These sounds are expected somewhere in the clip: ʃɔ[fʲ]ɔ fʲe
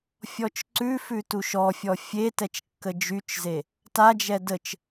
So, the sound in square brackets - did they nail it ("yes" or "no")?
yes